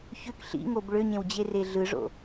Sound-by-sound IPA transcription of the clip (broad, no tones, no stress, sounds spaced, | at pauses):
ç ø k ɬ ḭ ŋ o b ɭ ø ɲ ẽ w d͡ʑ e r e ɮ ɯ ʐ o̰